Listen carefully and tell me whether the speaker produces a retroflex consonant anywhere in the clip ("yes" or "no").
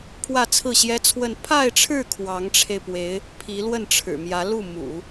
yes